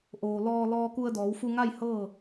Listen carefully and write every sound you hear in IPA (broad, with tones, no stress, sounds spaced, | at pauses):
ʔ oː˩ l ɔː˧ l ɔː˧ k u˧ ə̯ d ɔː˩˧ w f u˧ ŋ a˥˨ j h ɤː˥˨